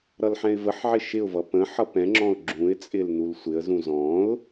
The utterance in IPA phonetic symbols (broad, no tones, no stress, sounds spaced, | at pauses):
ɾ ʌ l ħ ɛ̃ ɪ̯ v ə ħ ʕ ɪ ʃ ɪ ʊ̯ v ʌ p ə̃ ħ ʌ p ɛ̃ ŋ͡ǁ ɔ̃ ʊ̯ ɡ͡ǁ ũ ɪ̯ t͡sʼ ɪ l n u l sʷ ɪ ə̯ z ũ z ɔ̃ ʊ̯